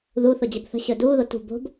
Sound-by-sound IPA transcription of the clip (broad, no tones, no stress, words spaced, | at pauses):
ðuθʊ d͡ʑəbθə̤ɕɵ duːðo tṳ bo̤b